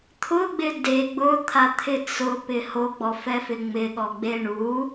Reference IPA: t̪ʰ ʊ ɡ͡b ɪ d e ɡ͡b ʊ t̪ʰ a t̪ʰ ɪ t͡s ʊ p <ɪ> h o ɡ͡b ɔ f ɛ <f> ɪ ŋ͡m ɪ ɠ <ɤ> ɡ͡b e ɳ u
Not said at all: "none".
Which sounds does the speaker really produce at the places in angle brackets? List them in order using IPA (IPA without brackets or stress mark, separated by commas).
ɪ, f, ɔ